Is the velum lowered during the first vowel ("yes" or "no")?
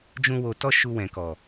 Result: yes